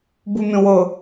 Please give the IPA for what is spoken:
b u mʲ õ w ɤ

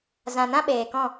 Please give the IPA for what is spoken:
z ã˨ n ã˦ ɓ eː˨ k ɔ̃˦˨

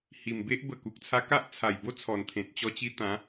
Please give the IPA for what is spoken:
h i˨˩ m b e˦ ʔ b ə˨˩ k u˨ k̚ t͡sʰ a˧ k a˦ ʔ t͡sʰ a˨˩ j b o˥˧ t͡sʰ ɔ˨˩ n t̪ʰ ẽ˨ t̚ t͡ɕ ɔ˧ t͡ɕ i˧ t̪ ã˨˦

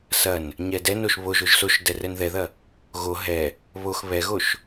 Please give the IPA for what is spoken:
s ɐ n | ɲ ɛ d ɛ n o ʃ β o ʒ o ʒ s o ʃ d ɛ r ɛ n ð ɛ ð ɐ | ɣ o ɦ ɛ | β o x β ɛ ɣ o ʃ

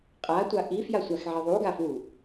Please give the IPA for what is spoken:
qʼ a tʷ a ʔ i f j a sʷ a x ʕ i ðˤ u ɡ a f w u

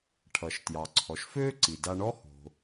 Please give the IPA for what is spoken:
ʈʰ ʌ˩ ʃ t j ɑ˩ ǀʰ ɔ˩ ʃ f øː˥ ǀ i˩ d a˧ ɳ ɔ˥ h o̤˩

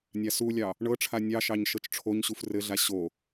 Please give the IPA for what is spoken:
nʲ a s u lʲ ɑ | ɳ ɤ ʈ͡ʂʰ a nʲ ɑ ʃ ɑ ɲ ʃ ɤ t͡ʃ ʈ͡ʂʰ o ɲ ɕ u f r ɘ ɮ a ɕ o

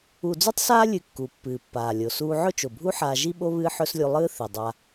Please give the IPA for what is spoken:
u˧ d͡z ʉ˥ tˤ s aː˥ lʲ ɨ˧ kː u˩ pː ɨː˩ pː aː˩ lʲ o˩ s uː˧ ʕ ɵ˥ t͡ʃ o˩ bʱ u˥ ħ aː˧ ʒ i˥ ɓ o˥ β ɨː˥ ħ ɵ˥ s lʲ u˧ lˠ ɨː˥ θ i˩ dˤ a˧

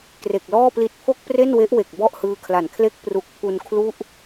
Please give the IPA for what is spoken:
k r e˨˩ k̚ l ɔː˥˩ p l i˦˥ t̚ pʰ o˥˩ k̚ p r e˥˩ n w e˦˥ ʔ w e˨˩ k̚ b ɔ˥˩ ʔ h ɯː˧ kʰ l a˨˩ n kʰ l e˥˩ k̚ p r u˨˩ k̚ pʰ u˧ n kʰ l u˥˩ ʔ

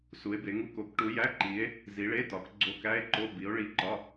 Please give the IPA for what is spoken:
s u˨˦ e̯ b e˨˦ ŋ u˧˥˧ k o˨˦ k ʈ u˨˦ j æ˧˥˧ ǃ i˨˦ e̯ | z i˨˦ ɭ e˧˥˧ t ɒ˨˦ k ɡ͡ǀ o˧˥˧ k æ˧˥˧ e̯ ǃ o˧˥˧ b i˨˦ o̯ ɭ i˧˥˧ ǃ ɒ˧˥˧

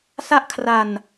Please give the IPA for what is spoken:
s a˥˩ ʔ kʰ r a˧ n

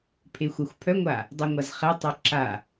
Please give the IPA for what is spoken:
pʰ e xʷ a xʷ pʰ œ ŋʷ a | dˤ ɛ ŋʷ a z χ ɛ tˤ ø ǁ a

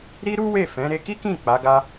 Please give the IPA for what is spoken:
ɾ i˦ ɾ u˦ w e˦˨ f ɛ̃˨˦ ɾ e˧ k i˦ k ĩ˦˨ k͡p a˨˦ ɡ a˦

